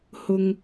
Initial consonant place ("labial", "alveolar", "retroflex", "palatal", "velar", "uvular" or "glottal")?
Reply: glottal